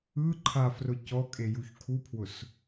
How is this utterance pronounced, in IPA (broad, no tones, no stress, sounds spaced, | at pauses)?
ɯ ǃʰ a f r ʊ c ɔ kʼ e j u ç kʰ u pʰ w ʊ s